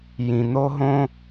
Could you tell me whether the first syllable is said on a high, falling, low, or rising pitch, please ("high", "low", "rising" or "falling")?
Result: low